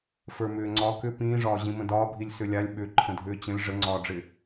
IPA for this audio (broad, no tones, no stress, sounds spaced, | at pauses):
f ə˞ m ʏː ŋ͡ǀ ɒ k ʏ p ĩː ʐ ɒː ʑ ĩ m ə̃ d ɒː bʱ i lʲ s ʏ lʲ a lʲ ɓ ʏ ǃʰ ə̃ dʱ ʏː t͡ɕ ə̃ lʲ ʐ ə ŋ͡ǀ ɒː ɖ͡ʐ ɪ